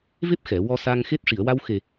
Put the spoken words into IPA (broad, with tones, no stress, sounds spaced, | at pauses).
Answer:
v e˦˥ p̚ x ɛ˨˩˨ w ɔ˧ s a˧ ŋ x e˦˥ t̚ ʂ i˨˩˨ ə̯ w a˧ w x e˨˩